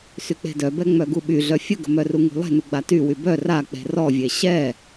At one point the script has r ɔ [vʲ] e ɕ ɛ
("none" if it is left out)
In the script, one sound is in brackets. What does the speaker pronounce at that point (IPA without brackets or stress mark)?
vʲ